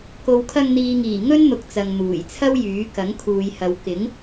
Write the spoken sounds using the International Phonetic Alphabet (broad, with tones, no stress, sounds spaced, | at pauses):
k o˨ w kʰ ɐ˧ ŋ n̪ iː˨ ŋ iː˨˩ ŋ ɵ˥ n n̪ ʊ˨ k̚ t͡s ɐ˨ ŋ n̪ uː˨˩ j t͡sʰ ɐ˥ w j yː˨˥ k ɐ˨˥ ŋ kʰ uː˨ j h ɐ˨˧ w k ɪ˨˥ ŋ